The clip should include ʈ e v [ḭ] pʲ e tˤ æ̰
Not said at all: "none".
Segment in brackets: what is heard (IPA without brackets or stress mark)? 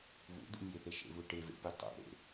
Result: ḛ